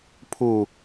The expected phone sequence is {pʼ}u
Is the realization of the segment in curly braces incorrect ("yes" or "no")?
yes